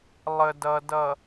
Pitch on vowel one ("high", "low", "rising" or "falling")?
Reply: low